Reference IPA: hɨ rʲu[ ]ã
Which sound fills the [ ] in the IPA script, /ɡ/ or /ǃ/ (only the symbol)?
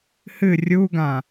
ɡ